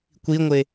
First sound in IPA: kʷ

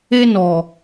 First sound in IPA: e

